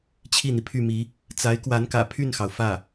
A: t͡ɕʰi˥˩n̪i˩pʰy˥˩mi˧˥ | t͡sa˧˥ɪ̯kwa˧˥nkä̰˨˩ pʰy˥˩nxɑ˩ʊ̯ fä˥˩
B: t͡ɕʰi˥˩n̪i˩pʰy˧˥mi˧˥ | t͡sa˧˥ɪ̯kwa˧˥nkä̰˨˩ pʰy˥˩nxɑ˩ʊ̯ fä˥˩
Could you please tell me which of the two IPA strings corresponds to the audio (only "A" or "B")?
A